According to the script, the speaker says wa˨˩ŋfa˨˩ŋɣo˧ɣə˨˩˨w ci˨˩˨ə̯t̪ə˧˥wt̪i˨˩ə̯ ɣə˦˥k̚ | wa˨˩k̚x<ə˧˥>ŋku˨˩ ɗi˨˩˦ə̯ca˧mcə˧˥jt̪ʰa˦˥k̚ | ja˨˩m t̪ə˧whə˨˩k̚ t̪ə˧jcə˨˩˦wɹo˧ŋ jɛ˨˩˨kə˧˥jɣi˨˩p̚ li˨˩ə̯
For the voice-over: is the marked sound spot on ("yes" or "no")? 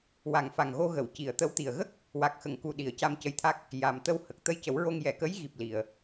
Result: no